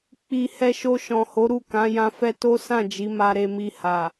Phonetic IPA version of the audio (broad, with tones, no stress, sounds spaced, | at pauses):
k͡p i˨ h ɛ˧ ʃ o˧ ʃ ɔ̃˨ h o˨˦ ɾ u˦˨ k ã˨˦ j ã˧ f ɛ˦ t o˦ s ã˦˨ d͡ʒ i˨˦ m a˧ ɾ e˧ m i˧ h a˨